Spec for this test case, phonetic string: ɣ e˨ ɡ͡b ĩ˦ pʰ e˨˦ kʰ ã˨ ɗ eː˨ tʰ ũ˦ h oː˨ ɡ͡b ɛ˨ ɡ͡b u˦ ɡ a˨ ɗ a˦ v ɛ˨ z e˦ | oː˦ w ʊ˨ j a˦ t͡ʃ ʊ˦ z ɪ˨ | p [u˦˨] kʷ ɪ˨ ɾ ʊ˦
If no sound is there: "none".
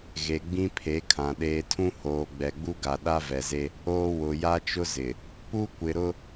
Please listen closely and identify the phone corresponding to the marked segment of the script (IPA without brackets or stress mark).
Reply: u˦